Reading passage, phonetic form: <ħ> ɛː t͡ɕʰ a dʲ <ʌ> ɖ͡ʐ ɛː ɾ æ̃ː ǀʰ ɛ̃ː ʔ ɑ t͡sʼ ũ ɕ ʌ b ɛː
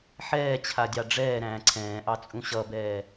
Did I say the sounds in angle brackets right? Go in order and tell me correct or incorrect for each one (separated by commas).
correct, incorrect